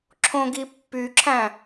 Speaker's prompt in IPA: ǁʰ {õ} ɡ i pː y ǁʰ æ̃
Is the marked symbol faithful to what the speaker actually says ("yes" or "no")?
yes